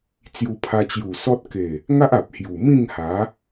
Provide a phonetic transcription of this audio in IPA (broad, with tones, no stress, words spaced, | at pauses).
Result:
t͡sju˧pʰa˧t͡ɕju˨˩ sɔ˦t̚ ke˨˩ | ŋa˦ʔ a˨p̚hju˨˩mĩ˥˧ŋ ha˨˦